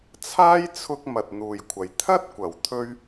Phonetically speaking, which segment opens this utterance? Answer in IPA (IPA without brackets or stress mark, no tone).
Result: t͡sʰ